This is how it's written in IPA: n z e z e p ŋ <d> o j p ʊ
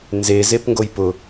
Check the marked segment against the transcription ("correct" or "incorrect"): incorrect